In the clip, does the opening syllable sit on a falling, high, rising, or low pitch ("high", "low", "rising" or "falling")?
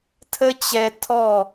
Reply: high